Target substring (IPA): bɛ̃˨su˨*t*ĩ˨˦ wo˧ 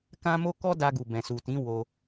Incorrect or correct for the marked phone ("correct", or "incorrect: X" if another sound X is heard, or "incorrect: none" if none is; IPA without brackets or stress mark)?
correct